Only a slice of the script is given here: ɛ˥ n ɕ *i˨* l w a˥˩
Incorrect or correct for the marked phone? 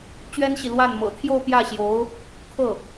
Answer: correct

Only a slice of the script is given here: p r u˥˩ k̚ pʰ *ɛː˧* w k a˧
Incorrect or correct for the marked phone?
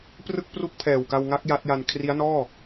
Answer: incorrect: ɛː˨˩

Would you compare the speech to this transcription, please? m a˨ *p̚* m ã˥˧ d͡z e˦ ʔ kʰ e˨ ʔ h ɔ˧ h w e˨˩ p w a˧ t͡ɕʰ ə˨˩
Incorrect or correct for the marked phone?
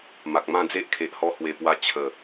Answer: incorrect: k̚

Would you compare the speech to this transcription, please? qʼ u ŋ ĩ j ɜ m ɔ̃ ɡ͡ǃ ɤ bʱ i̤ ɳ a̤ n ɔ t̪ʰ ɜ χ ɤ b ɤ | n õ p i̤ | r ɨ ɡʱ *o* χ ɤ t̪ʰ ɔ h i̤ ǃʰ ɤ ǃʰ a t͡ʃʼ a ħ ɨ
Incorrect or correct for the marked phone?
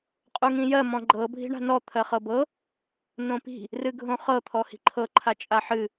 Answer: incorrect: õ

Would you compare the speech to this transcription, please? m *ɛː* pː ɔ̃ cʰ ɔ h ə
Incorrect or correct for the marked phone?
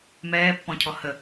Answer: correct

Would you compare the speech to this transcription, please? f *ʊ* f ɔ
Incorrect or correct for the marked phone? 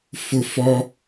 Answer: correct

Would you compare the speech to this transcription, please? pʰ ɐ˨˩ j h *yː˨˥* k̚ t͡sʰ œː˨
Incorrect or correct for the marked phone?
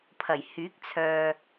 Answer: correct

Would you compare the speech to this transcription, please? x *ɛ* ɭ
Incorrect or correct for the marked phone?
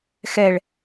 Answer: correct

